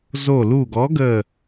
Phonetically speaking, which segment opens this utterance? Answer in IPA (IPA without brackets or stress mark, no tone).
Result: z